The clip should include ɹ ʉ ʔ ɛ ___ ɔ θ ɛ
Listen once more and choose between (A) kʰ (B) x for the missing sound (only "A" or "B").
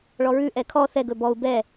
A